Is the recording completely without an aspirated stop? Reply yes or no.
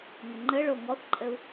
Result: yes